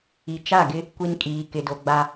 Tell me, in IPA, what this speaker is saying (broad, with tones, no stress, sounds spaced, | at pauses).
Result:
i˨ t͡ʃ a˦˨ ɡ ɪ˦ | kʷ i˦ n kʼ iː˨ k ɪ˨ d o˨ ɡ͡b a˦